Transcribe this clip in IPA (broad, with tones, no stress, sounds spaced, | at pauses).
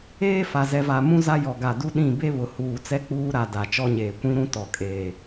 eː˦ f a˨ z ɛ˨ v a˨ m ũ˦ z a˦ j ɔ˨ ɡ a˨ d u˦ ɗ ĩ˦˨ b e˦ β ʊ˨ h uː˨ t͡s ɛ˦ k͡p uː˦ ɾ a˨ d a˨ t͡ʃ ɔ˦ ɲ eː˨ kʷ ĩ˦ ɾ ũ˦ t ɔ˨ kʼ eː˨